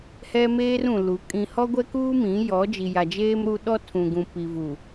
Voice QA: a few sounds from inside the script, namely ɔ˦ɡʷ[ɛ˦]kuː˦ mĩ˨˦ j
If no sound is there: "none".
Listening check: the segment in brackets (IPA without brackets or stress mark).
ɛ˦